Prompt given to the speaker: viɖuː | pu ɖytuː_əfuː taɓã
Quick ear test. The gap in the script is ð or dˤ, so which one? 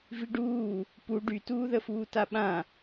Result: ð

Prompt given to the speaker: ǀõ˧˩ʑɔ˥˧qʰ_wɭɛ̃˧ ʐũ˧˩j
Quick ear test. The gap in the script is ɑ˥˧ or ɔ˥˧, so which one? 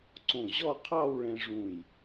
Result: ɑ˥˧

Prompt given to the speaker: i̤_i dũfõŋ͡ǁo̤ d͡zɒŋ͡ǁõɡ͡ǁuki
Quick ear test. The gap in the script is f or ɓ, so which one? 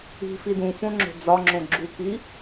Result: f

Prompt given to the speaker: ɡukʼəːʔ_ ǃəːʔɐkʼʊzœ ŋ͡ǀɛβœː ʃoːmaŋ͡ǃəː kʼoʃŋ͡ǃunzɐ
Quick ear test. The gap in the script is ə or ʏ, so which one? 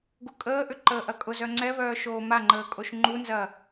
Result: ʏ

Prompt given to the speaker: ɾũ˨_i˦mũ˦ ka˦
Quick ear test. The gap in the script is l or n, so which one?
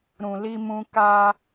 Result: l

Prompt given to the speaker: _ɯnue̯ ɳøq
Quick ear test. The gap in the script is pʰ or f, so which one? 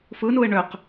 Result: f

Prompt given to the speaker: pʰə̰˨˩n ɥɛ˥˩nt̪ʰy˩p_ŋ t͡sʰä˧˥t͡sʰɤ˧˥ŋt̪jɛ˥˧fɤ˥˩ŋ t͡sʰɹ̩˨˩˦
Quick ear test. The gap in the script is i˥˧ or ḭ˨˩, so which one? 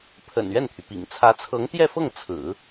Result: ḭ˨˩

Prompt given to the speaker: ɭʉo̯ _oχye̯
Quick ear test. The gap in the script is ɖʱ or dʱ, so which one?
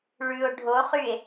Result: ɖʱ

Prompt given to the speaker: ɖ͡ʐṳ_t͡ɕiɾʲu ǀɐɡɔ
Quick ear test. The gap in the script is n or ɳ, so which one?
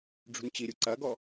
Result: n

